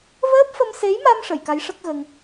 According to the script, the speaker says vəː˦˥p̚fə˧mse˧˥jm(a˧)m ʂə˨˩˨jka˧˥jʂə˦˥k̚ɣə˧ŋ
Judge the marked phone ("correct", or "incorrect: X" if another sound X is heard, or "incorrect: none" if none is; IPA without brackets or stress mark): correct